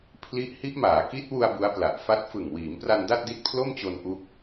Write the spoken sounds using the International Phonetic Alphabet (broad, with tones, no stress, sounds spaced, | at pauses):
pʰ l i˦˥ ʔ h i˦˥ ʔ m aː˩˦ k i˦˥ t̚ w u˧ a̯ b u˦˥ a̯ p l a˨˩ ʔ f a˥˩ t̚ f ɯ˨˩ ŋ w iː˩˦ m p r a˧ n d a˥˩ t̚ d i˦˥ t̚ pʰ l o˥˩ m t͡ɕ o˧ n ʔ u˦˥ k̚